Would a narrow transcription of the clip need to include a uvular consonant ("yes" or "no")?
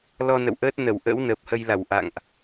no